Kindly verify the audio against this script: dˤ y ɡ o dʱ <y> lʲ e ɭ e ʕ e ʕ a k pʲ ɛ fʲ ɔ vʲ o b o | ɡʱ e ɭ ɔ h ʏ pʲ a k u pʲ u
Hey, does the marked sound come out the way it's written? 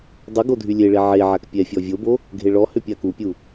yes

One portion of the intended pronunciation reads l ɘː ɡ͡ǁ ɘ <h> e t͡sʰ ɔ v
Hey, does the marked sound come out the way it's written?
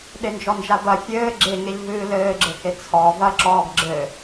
yes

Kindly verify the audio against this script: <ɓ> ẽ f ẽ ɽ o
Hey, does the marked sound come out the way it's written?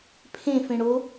no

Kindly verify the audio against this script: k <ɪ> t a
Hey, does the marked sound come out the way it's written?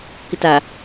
yes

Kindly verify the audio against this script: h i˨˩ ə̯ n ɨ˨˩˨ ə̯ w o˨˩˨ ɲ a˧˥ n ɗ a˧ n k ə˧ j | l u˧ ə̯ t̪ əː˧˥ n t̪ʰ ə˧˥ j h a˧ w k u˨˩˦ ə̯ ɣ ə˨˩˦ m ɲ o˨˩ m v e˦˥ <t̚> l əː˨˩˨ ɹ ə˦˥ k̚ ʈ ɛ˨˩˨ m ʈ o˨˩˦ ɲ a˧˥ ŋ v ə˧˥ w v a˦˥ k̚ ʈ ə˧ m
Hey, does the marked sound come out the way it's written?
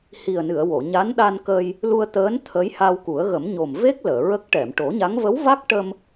no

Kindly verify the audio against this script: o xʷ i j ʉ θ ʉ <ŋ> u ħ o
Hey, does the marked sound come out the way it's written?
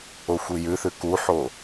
no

